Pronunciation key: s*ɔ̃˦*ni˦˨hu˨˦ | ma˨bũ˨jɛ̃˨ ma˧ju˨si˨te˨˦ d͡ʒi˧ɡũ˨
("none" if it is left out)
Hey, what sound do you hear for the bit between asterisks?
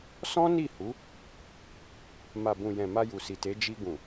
ɔ̃˦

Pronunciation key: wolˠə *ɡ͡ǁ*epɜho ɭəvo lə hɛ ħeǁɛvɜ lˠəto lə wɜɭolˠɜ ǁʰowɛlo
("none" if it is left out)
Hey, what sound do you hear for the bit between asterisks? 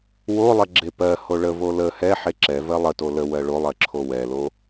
ɡ͡ǁ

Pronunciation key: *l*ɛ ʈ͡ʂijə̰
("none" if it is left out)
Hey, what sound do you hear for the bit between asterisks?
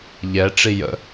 ʎ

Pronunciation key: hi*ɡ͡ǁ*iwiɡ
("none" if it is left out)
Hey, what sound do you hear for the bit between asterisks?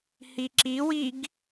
ǁ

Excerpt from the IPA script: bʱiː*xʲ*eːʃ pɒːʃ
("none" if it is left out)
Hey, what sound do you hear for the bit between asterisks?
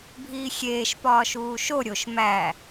xʲ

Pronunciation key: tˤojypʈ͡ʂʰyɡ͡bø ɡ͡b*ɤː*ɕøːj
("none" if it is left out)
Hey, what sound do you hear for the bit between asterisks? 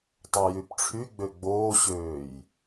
oː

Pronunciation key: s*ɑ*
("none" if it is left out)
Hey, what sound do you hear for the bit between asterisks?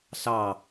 ɑ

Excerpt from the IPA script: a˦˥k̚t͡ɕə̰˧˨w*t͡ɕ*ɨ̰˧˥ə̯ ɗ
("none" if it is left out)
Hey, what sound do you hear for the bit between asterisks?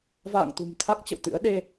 t̪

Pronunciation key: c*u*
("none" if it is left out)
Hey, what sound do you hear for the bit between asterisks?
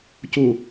u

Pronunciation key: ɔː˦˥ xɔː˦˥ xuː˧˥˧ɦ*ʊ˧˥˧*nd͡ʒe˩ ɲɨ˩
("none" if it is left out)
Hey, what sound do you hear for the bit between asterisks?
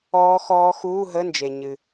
ə˧˥˧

